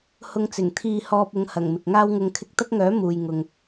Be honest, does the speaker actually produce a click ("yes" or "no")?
no